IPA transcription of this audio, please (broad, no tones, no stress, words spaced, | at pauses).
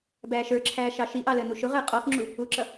bæːʃə˞ǁʰæː ʃɑʃiʔɑ ləːnuʃʊʁəː qʼɔxŋ͡ǁu | uǁʌ